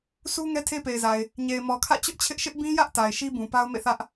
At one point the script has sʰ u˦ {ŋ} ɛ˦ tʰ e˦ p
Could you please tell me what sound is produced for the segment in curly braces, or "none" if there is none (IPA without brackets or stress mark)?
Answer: ŋ